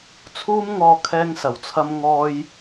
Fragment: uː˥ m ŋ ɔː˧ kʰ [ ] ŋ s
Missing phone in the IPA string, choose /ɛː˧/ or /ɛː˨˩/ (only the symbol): ɛː˧